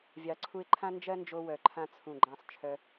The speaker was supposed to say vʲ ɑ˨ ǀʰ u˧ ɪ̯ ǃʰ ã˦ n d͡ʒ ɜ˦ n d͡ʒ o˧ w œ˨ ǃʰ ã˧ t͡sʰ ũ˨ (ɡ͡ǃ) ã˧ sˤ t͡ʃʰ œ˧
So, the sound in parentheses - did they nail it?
yes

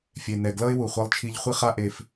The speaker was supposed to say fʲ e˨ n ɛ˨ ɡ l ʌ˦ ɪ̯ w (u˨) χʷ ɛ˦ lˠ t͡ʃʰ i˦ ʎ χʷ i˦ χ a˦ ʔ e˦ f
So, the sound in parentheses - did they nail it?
yes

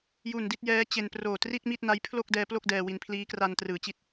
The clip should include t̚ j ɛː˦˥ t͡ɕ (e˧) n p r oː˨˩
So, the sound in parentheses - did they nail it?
yes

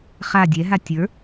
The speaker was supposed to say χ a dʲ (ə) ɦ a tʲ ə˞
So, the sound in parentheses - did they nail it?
no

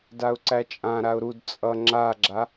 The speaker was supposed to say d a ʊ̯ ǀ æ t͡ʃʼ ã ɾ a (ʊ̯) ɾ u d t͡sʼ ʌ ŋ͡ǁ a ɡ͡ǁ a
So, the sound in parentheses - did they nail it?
yes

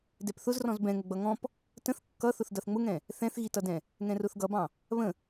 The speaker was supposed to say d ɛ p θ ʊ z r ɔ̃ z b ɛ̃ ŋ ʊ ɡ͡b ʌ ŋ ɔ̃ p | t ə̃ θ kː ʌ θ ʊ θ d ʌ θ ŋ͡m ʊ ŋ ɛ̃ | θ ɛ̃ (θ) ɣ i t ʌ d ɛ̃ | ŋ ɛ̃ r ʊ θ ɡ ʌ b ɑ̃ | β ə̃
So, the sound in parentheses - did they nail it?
yes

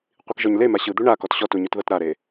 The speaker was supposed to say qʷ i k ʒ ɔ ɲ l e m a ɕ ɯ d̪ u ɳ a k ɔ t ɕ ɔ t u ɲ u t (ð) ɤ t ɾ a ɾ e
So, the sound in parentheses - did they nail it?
yes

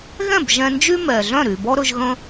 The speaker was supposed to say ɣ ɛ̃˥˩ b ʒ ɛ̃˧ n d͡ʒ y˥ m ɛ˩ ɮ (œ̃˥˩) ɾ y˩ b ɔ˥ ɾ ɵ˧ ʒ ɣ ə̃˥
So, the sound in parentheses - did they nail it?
yes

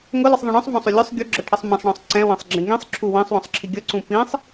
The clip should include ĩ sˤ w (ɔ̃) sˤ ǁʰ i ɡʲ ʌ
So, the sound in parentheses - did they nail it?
yes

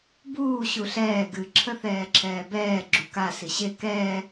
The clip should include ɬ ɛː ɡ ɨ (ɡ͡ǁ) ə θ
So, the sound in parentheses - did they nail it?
no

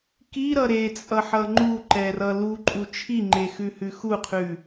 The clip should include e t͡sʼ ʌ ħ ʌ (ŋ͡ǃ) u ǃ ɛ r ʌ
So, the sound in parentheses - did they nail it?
yes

